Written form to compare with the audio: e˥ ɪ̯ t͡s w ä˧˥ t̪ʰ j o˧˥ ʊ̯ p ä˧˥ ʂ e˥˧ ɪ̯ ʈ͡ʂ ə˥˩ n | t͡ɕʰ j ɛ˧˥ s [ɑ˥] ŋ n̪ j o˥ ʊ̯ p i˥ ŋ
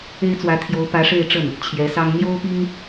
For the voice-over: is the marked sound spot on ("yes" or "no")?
yes